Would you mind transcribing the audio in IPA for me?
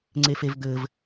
ŋ͡ǀ e f e v d̪ ɘ v

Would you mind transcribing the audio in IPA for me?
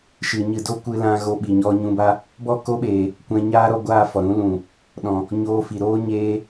ʃ ɨ˨ ɲ ɨ˨ d o˦˨ kʷ ɨ˦ l ã˦ ɣ o˧ ɓ i˨ ɲ ɔ˧ ɲ ũ˧ b a˦ | b ɔ˦ k o˦ ɓ eː˨ | kʷ ɛ̃˧ ɲ aː˦ ɾ ɔ˧ ɡʷ aː˦˨ f ɔ˨ ɾ ũ˨˦ l ũ˨ | ɗ ɔ̃˨ | ɲ oː˧ f i˨ ɾ oː˦ ɲ eː˧

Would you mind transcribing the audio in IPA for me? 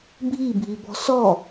bʱ i bʱ i b ɔ̤ s ɔ

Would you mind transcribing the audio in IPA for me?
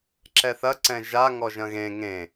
ǁ ɛ θ ɐ ǀ ɛ̃ ʒ a ŋ ɔ ʒ ɐ̃ ɣ ẽ ŋ ẽ

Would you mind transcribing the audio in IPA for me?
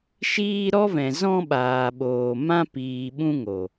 ʃ iː˧ ɾ ɔ˦ v ɛ̃˨ z ɔ̃˧ ɓ aː˨ ɓ oː˨ m ã˧ p iː˨ ɓ ũ˦ ŋ o˨

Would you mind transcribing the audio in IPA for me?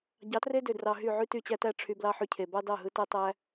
ɟ ɑ˨˦ t r e˦ d ø˨ d r ɑ˨ ɦ y˦˨ ʕ y˦ t y˦˨ t͡ɕ æ˦ t æ˦ ʈ͡ʂʰ y˧ b l ɑ˦ ħ y˧ cʰ e˨ b ɑ˦ d ɑ˦˨ ɦ ɯ˧ t æ˦ tˤ æ˦

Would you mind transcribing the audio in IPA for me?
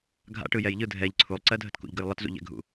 ɡʱ a̰ ʈ ɯ j ɛ j ʎ ɯ dʱ ɛ ʎ ǀʰ u lˠ ǀ ɜ dʱ ə t k ṵ ʎ ɡ ə j lˠ ə t z ṵ ʎ ɛ̰ ɡʱ ṵ

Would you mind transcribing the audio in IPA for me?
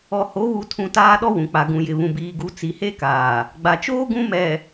ɔ˨ h o˨˦ β u˨ tʰ ũ˨ t aː˦ ɗ ɔ˦ w ũ˨ k͡p a˨ ɡ ũ˨ j ɪ˨ β ũ˨ b iː˨ ɡ u˨˦ t͡s i˨ h e˦ k aː˨ | ɡ͡b a˨ t͡ʃ oː˦ ɡ ũ˦ m ɛ˨

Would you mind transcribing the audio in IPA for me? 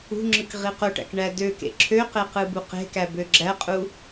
ṳ ŋ͡ǁ ɯ k ʁ i q o ʈ æ̰ k ɳ æ d ø k ḛ ǁʰ ø q e q ɯ b u q e̤ k æ b ø ɡ͡ǁ æ qʼ u

